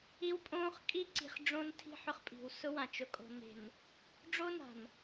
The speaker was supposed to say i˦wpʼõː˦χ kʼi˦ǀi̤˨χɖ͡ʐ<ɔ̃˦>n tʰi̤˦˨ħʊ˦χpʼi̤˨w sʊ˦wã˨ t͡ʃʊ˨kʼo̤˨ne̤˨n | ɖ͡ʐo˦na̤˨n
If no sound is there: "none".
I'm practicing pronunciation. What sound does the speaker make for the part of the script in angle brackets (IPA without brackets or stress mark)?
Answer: õ˦